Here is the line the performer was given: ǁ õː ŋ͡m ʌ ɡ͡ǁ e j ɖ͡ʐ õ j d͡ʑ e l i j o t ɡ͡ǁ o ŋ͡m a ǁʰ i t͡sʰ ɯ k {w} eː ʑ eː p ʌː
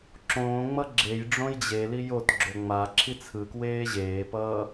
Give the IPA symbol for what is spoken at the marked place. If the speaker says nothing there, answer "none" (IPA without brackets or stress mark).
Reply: w